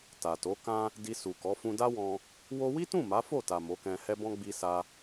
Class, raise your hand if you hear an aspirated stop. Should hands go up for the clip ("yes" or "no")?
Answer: no